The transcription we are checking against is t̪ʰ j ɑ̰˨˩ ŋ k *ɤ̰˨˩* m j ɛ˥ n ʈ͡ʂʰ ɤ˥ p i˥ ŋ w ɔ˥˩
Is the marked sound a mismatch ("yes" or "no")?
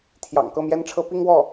yes